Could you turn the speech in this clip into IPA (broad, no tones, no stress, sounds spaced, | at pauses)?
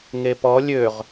ŋ e p ɔ lʲ ø ʁ